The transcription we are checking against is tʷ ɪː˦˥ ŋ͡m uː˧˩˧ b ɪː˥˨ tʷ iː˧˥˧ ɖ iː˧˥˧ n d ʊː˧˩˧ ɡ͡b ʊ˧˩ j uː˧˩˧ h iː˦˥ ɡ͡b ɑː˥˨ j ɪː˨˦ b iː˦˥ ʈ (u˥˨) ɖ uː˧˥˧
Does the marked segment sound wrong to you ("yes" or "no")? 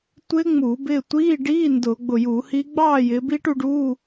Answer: yes